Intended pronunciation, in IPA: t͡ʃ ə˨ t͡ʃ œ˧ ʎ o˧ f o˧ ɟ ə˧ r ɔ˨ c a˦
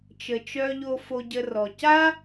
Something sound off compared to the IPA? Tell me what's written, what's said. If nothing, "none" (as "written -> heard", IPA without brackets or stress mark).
none